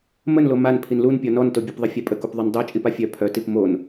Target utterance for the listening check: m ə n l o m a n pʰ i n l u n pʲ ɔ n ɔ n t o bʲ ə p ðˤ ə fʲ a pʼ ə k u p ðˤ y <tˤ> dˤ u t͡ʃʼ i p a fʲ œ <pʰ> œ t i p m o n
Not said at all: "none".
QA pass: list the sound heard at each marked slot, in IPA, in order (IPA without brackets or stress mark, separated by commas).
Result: n, pʰ